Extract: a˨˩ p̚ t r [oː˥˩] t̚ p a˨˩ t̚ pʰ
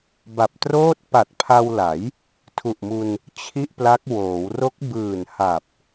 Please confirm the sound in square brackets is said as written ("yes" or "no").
yes